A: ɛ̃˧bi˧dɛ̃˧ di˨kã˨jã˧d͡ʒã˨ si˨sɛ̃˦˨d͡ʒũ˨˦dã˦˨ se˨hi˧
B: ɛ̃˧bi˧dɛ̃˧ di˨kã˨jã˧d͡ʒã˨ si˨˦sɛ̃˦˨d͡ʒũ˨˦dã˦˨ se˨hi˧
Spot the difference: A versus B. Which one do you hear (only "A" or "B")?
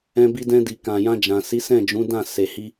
B